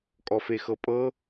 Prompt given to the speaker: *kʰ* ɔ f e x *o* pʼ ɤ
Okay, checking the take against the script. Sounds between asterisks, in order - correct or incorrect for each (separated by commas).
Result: incorrect, incorrect